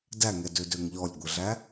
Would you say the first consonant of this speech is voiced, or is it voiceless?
voiced